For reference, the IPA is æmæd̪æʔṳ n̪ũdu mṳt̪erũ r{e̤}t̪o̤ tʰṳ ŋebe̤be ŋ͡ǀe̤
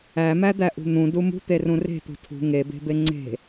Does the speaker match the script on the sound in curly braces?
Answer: yes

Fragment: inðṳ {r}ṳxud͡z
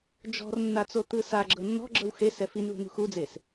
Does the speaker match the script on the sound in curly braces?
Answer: no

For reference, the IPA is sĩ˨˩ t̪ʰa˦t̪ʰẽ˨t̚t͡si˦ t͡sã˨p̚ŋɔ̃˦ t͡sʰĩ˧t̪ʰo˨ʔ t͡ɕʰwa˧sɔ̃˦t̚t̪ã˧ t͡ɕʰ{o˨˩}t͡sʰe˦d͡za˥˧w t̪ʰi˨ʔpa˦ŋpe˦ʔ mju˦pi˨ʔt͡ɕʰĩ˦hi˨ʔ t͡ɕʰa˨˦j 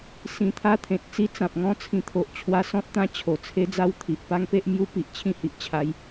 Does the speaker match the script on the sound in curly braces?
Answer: yes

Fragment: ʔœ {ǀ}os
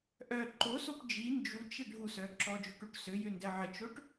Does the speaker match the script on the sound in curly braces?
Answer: no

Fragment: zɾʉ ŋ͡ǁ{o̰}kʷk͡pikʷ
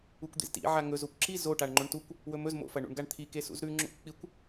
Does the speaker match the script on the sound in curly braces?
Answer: yes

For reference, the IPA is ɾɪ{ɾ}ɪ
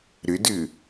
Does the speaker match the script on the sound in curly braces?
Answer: no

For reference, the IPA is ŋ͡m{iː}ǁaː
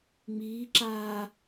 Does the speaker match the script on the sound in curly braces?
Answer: yes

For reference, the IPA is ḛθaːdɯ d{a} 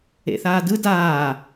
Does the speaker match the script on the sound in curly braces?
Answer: no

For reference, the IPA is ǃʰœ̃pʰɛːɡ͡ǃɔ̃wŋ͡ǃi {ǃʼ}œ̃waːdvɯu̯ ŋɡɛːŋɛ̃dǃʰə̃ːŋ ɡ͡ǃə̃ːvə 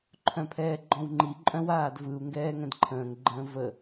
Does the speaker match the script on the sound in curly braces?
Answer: yes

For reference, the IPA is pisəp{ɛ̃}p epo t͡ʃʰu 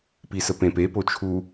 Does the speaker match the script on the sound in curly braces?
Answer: no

